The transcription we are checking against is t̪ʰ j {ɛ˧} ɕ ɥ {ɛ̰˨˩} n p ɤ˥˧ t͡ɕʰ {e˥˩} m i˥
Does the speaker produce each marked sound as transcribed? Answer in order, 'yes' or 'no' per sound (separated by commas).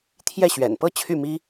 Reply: no, yes, no